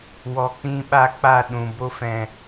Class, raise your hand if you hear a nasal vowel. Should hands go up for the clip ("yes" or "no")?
yes